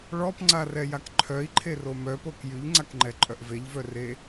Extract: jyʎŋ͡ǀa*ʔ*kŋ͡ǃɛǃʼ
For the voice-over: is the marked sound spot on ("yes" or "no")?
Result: no